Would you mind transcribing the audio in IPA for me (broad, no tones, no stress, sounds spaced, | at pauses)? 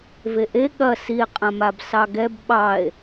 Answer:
v e ʔ e ɠ ɐ s i e̯ qʼ ã m a b s ɑ ɡ ɛ b ɓ ɑ e̯